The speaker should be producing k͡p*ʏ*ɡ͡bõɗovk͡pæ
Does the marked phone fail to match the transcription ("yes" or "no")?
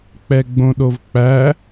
yes